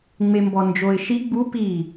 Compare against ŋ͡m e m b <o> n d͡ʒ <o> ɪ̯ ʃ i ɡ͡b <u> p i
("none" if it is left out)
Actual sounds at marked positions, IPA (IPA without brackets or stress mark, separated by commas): ɔ, o, u